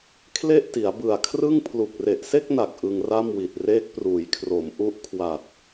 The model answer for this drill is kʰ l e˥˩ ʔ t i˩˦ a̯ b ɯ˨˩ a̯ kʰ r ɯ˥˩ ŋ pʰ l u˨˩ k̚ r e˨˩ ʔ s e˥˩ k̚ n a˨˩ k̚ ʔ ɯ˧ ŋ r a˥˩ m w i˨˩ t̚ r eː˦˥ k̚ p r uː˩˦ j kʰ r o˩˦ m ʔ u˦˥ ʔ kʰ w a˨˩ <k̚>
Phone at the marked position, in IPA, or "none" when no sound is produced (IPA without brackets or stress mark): t̚